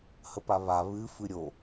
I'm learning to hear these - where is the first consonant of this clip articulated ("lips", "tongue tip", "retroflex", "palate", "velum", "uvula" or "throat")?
throat